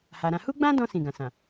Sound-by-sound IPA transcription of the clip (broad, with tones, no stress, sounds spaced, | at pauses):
h a˨ ɾ ã˧ h u˦ ɡ͡b ã˦ d ɔ̃˧ s ĩ˨ ɡ ã˨ s ã˨